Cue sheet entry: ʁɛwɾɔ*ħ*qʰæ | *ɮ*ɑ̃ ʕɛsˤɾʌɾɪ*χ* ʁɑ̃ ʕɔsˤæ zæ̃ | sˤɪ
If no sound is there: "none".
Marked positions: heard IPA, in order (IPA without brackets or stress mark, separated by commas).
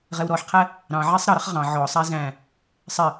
ħ, ɾ, χ